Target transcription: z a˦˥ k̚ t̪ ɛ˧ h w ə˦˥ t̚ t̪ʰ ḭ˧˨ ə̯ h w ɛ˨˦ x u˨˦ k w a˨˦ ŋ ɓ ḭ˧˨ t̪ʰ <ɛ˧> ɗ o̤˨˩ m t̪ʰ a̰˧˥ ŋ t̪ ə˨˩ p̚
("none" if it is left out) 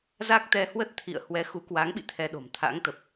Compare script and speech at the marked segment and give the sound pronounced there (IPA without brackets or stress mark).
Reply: ɛ˧